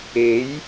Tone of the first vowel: rising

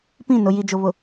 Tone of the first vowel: falling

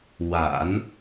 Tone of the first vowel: low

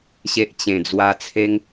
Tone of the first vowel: low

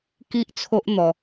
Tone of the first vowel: high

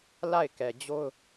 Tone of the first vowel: falling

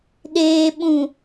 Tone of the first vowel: low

